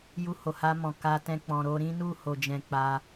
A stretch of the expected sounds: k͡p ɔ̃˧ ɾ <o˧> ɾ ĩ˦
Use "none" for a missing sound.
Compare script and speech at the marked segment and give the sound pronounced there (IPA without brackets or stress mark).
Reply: o˧